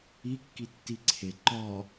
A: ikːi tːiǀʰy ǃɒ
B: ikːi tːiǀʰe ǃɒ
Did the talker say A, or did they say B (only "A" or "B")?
B